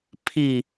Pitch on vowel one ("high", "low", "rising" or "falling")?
falling